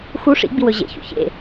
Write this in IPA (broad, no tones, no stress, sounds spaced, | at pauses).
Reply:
x u ʂ ḭ ɡ͡b i w ɵ ʑ ḛ ç ṵ ç ḛ